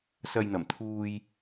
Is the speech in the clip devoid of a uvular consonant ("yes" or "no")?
yes